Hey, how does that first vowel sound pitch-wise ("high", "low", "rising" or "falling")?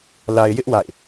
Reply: low